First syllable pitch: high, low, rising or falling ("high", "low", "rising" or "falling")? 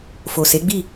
low